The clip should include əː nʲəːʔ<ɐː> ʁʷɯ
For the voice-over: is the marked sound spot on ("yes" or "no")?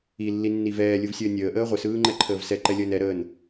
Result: no